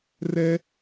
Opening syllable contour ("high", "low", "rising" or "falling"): high